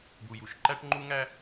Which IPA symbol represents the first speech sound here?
d̪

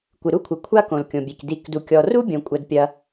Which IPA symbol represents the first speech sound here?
kʷ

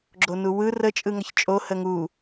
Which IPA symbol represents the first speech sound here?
ɡ͡ǁ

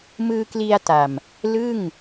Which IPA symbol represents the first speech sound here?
m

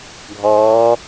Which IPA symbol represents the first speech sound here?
ɡʱ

